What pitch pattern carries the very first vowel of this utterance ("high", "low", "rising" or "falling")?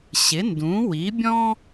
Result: rising